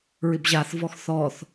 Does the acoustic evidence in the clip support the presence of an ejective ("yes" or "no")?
no